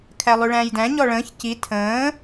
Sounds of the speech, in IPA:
kʰ æ lˠ ʉ ɭ æ̃ː j d æ̃ ɲ ɔ ɭ ə̃ː ç c i tʰ ə̃ː

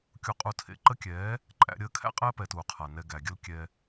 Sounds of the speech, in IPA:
kʲ u˧ qʼ u˧ tʰ ḛ˧ ǃ ə˦ kʲ ɛː˨˦ | ǃʼ æ̰˦ ɾʲ əː˧ kʰ æ̰˦ qʼ ɛː˦ p ɛː˨ t uː˨ qʰ a˨ n ɛ˧ ɡ æ˨ ɡʲ ə˧ l kʲ ɛ˧

